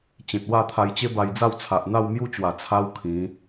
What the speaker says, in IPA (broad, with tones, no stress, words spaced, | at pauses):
t͡ɕẽ˨t̚wa˥˧t̪ʰa˧jt͡ɕe˦ ba˧jd͡za˥˧wt͡sʰa˨ʔn̪a˥˧w mju˥˧t͡ɕwa˨˩ t͡sʰa˦wkʰĩ˨˦